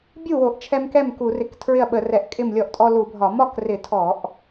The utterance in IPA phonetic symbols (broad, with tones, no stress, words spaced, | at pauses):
bʲu˥˩wo˧˩˧ʔt͡ʃʰɛ˧m kɛ˥˩mku˧˩˧rɪ˧˩˧k tʰɹɪ˥˩ɐ̯ɓə˧˩˧rɛ˧˩˧ʔkʼɪ˥˩m lʲɔ˧˩˧ʔtʼɔ˧ lu˧˩˧bʱɒ˧˩˧ mɒ˥˩krɪ˧˩˧tʰɔ˧˩˧ʔ